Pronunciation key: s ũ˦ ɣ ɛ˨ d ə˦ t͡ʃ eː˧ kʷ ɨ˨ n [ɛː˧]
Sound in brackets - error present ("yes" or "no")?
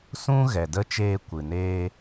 yes